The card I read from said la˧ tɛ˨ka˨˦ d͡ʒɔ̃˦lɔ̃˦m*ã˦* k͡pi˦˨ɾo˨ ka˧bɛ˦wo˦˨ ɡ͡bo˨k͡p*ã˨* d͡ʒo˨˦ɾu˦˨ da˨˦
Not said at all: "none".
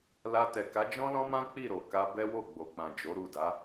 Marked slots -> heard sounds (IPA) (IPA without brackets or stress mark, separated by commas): ã˦, ã˨